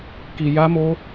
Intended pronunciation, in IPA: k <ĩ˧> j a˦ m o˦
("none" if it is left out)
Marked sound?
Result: i˧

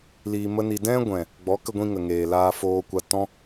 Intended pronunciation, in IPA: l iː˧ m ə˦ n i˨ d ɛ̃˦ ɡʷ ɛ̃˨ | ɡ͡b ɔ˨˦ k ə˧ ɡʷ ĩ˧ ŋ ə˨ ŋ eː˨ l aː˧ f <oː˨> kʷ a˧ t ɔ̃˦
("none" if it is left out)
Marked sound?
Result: oː˧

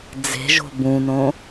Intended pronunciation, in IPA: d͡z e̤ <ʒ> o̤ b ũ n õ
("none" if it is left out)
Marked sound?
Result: ʒ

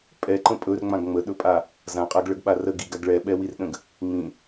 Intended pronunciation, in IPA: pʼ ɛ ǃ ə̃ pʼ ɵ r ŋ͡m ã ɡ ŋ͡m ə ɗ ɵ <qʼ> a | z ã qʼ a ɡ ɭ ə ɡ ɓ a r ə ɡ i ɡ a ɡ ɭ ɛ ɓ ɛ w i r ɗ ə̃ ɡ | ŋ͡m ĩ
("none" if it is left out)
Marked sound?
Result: pʼ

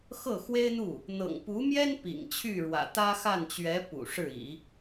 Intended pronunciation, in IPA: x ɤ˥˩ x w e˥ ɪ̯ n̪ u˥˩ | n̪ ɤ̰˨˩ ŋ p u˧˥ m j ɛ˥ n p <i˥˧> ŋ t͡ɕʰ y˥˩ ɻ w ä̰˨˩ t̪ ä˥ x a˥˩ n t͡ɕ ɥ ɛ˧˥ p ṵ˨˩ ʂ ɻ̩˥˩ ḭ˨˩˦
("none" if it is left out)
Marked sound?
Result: ḭ˨˩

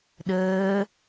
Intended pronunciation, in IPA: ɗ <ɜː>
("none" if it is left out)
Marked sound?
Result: ɜː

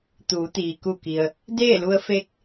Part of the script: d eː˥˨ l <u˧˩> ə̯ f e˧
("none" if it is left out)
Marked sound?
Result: u˧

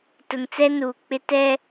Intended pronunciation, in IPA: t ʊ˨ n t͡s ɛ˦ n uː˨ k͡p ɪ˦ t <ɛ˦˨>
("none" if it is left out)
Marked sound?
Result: ɛ˦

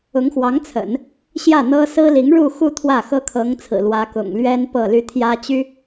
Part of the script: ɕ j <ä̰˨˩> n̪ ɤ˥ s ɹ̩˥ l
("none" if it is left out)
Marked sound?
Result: ä˥˩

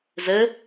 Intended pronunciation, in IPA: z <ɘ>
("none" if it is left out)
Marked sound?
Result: ɘ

